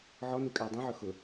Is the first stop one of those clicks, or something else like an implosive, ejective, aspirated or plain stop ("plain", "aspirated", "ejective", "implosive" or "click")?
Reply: ejective